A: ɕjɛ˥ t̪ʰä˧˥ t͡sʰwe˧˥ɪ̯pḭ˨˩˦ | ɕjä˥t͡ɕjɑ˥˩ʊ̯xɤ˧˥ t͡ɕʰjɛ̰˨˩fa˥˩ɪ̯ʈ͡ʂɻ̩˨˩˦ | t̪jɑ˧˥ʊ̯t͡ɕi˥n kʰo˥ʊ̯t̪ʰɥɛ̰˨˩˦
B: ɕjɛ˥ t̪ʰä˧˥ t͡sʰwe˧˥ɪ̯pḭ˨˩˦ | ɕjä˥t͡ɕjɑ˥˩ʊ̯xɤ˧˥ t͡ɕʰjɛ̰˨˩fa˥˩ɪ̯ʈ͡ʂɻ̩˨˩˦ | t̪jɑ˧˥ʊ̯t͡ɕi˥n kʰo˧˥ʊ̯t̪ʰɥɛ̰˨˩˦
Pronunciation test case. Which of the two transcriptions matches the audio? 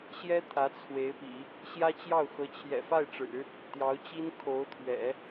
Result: B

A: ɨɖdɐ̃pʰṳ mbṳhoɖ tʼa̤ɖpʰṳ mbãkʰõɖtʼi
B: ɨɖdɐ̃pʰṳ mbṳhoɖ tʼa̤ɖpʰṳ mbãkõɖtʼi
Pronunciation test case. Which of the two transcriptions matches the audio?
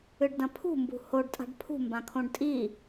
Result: A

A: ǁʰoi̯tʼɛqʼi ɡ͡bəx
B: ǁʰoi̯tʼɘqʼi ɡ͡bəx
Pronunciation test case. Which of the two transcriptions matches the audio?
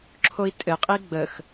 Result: B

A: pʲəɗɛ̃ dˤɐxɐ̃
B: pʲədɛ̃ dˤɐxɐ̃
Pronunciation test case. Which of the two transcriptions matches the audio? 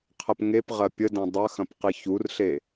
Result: B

